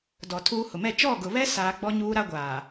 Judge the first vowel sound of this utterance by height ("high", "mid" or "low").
mid